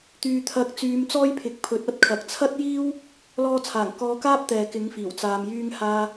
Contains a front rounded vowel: yes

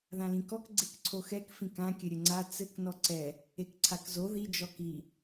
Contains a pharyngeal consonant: no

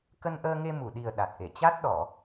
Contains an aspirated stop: no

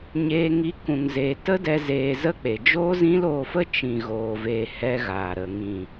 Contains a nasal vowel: yes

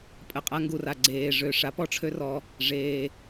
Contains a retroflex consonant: yes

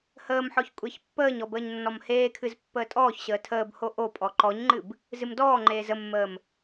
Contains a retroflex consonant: no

